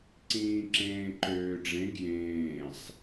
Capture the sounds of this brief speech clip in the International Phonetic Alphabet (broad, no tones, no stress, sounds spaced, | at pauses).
ǀ ĩː ǁ ẽː ǃ øː ɖ͡ʐ ẽ ɡ j ẽː sˤ